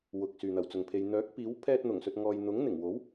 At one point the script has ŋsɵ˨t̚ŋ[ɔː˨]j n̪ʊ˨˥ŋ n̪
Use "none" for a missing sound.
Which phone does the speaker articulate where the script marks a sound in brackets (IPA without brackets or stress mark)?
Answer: ɔː˨